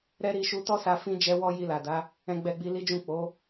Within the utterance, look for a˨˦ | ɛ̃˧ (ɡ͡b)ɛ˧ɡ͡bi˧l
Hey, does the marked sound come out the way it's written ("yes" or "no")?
yes